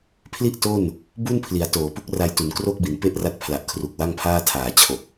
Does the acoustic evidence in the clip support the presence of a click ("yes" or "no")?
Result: no